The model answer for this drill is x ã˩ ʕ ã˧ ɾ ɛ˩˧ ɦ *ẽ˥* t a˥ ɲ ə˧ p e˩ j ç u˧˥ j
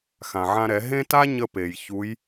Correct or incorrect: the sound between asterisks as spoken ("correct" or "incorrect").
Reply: correct